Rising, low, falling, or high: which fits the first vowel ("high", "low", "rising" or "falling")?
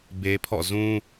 high